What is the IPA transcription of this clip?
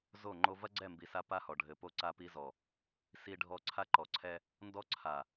z o˦˨ ŋ͡ǃ o˦ v ɐ˦ ɡ͡ǀ ɛ˦˨ m b i˨ s a˦ p a˦ h ɔ˨ ɖʱ ɘ˨ p o˦ ǀ a˦ p i˦ z ɔ˨ | s i˨ ɖʱ ɔ˨ ǀʰ a˦ ǃ ɔ˨ ǀʰ ɛ˦ | n d ɔ˦ ǀʰ a˨

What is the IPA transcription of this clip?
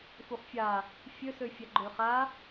f u χ fʲ a | fʲ ø s ø fʲ a ɡ͡ǃ ø χ a

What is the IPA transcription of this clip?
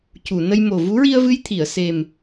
c u˨˩˨ n ə˧ j m o˨˩ v u˧˥ ɹ i˧ ə̯ v ɨ˧ j t̪ʰ i˨˩˨ ə̯ s e˨˩ m

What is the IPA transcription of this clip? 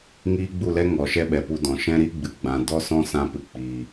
ŋ iː˦ ɡ͡b u˦˨ l ɛ˦ ŋ ɔ˨ ʃ ɛ˦ ɓ ɛ˨ p u˧ d ɔ̃˨ ʃ ɛ̃˦ ɾ i˦ ɡ͡b ɨ˨ ɡ͡b ã˨ d ɔ˦ s ɔ̃˦ s ã˧ p ɨ˨ k͡p iː˨

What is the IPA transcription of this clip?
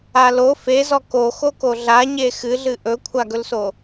a l o f e z ɔ k o x o k o ɮ a ɲ e x ɨ ɮ ɨ ʔ ɵ kʷʰ a ɡ ɵ l s o

